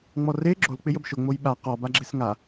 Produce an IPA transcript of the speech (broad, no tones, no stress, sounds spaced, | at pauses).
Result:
ŋ͡m ɔ r e ɡ͡ǁ o l k͡p ɪ j ə b ʃ o ŋ͡m o j ɓ a q ɔ b a ɡ͡ǁ e s ŋ a